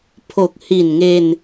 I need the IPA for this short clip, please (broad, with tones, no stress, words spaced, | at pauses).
pʰo˨˩k̚hi˨˩nŋe˧n